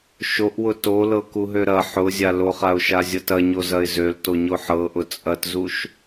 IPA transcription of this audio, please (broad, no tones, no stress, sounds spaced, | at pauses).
ʃ o ʔ w ʊ t o l ɤ k u ɦ ø ɾ ɐ ħ ʊ zʲ a l o χ a ʊ̯ ʃ a zʲ ɤ t ɐ ɲ o z ɐ ɪ̯ z ø l t o ɲ o ħ ɤ ʔ ʊ t͡sʼ ɐ t z u ʃ